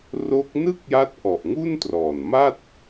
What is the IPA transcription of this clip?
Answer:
r o˦˥ k̚ n ɯ˥˩ k̚ j a˦˥ t̚ ʔ ɔ˨˩ ʔ ŋ u˥˩ n t r ɔː˨˩ n m a˥˩ t̚

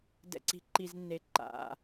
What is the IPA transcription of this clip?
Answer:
d ɛ̰˨ ǀ i̤˨ ǃ i˨ z nː e˨˦ ǃ a̰˨

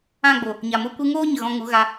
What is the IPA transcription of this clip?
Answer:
ã˦˨ ɡ͡b o˨ | ɲ a˨ m o˧ kʷ ɨ˧ ŋ oː˦ ɲ ə˨ ɣ ɔ̃˧ ŋ u˨˦ ɣ a˧

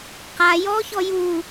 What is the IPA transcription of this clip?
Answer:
q a j ɔ ç ɔ j u

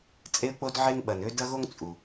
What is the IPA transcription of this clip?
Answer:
t͡sʼ e˦ ə̯ k͡p o˦ d ʕ e˦ ŋ ɓ ɐ˩ n ø˦ d ɐ˦ ɣ o˦ ŋ t͡sʼ u˩

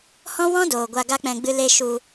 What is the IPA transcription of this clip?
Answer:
h ɔ̃˦ w ɔ̃˦ d oː˨ ɡʷ a˧ ɡ a˦ k͡p ɛ̃˧ ɡ͡b ɨ˧ l e˧ ʃ u˧

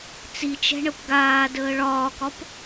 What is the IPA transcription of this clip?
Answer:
t͡s i t͡ʃ ɛ̤ ɳ ə p ɡ aː d əː ɭ ɒː k ɒ p

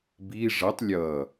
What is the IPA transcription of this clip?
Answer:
b i ʐ ʌ tˤ lʲ ʌ

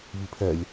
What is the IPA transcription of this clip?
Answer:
β i pʰ ɛ lʲ

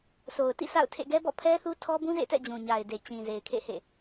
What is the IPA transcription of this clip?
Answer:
s o˨ ʊ̯ t ḭ˦˨ sʰ a̰˦˨ ʊ̯ tʰ ḛ˦˨ ɡ ɛ˦ b ɔ̰˦˨ pʰ ɛ˦ θ u˦ tʰ ɔ˦ b ũ˦ z ḛ˦˨ t ɛ̰˦˨ d͡ʑ ũ˨ ɲ a˨ ɪ̯ d e˨ t͡ɕ ĩ˨ z e˨ ɪ̯ kʰ ḛ˦˨ h ḛ˦˨

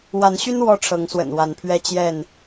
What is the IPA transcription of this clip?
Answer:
w a˨˦ n ɕ y˦ n w ɔ˦ ʈ͡ʂʰ ɤ˨˦ ŋ s w ə̰˨˩ n w a˨˦ n pʰ ɥ ɛ˦ t͡ɕ j ɛ˥˨ n

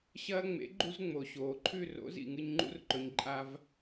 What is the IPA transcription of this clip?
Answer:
ɕ ɐː˧ ŋ͡m ḛ˨˦ ɡ͡ǃ u˧ z ŋ͡m o˨ ɕ oː˨ ǃʰ ʉ˦˨ r o̰˨˦ z ḭ˨ ŋ ɨ˧ ɲ ŋ͡ǃ ṵ˦ r ǃ ɵ˧ ɲ ǃʼ a˧ v

